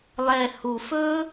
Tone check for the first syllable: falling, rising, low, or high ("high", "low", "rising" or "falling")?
low